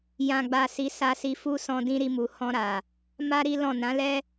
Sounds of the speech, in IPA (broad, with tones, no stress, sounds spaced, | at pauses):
j ã˨ ɡ͡b a˨ s i˨˦ s a˧ s i˧ f u˦ s ɔ̃˧ d ĩ˧ ɾ i˧ m u˨ h ɔ̃˧ ɾ a˨ | m a˦ ɾ i˦ l ɔ̃˦˨ n ã˨˦ l ɛ˦